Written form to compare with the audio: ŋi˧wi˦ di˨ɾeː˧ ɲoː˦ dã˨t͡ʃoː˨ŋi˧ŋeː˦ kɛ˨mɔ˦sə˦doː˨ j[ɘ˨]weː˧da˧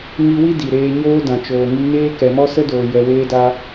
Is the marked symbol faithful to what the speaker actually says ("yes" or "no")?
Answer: no